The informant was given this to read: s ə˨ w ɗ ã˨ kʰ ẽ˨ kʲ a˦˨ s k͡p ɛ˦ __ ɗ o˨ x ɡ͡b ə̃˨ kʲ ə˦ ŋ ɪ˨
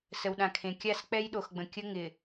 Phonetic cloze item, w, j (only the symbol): j